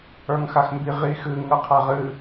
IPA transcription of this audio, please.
ə˞ ŋ x a x m b i ʁ i x ɨ ŋ ɯ qʰ a ʁ ɨ

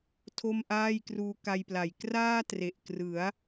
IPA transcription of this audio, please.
tʰ o˥˩ m ʔ aː˥˩ j k r uː˦˥ k a˧ j p l a˨˩ j k r aː˥˩ t r e˨˩ ʔ k r ɯ˩˦ a̯

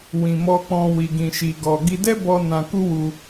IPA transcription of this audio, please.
w ĩ˧ m ɔ˦ k͡p ɔ̃˦ w i˧ ɡ ĩ˧ ʃ i˧ ɡ ɔ˧ ɡ i˧ d ɛ˦ b ɔ˧ n ã˧ k u˦ w u˧

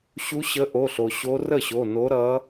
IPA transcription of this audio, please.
ɕ u˧˥ ɕ ə˧˥ ʔ o˩˧˩ ɬ o˩ ɕ o˧˥ r ə˥˩ ɕ o˩˧˩ n o˧˥ ɾ ʌ˧˥

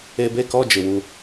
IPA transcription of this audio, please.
e˨ b e˦˨ k ɔ˦˨ d͡ʒ ɪ˨ w u˦

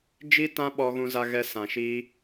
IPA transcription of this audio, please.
d͡ʒ i˦ t ã˦ ɓ ɔ˧ ɣ ũ˧ z a˧ ɣ ɛ˧ s ã˨ ʃ i˧

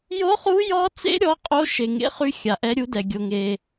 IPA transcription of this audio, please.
j o˦˥ χ u˦˥ j ɔ˦˥ t͡s ḛ˦˥ ɾʲ ɔ˦˥ qʼ o˦˥ ʃ e˨ ŋ ḛ˦˥ χ y˦˥ xʲ a˨ ʔ ɛ˦˥ ɾʲ u˦˥ d ɛ˨ ɡʲ o˨ ŋ e˨

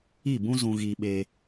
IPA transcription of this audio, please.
i˦˨ b ũ˦ z ũ˧ ɣ i˧ ɓ e˧

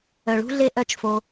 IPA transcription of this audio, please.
œ˨ ɭ ṳ˦ ɮ e˦ ʔ œ˦ t͡ʃ f o˧

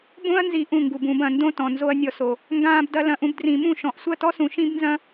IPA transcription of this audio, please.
b õ˧ ɐ̯ n z i˨ ʔ ũ˦˨ ŋ ɡ u˨ b ũ˨ b ɐ̃˨ n d õ˦ t ɔ̃˨ n z o˦ ɐ̯ nʲ ɔ˧ s o˨ | ŋ ɡ ãː˧ b d ɐ˧ l ɐ̃˨ ʔ ũ˧ b d r ĩ˨ m ũ˦˨ ʃ ɔ̃˨ ʔ sʷ ɐ˦˨ t ɔ˦ s ũ˨ ʃ ĩ˦ b n z ɐ̃˦

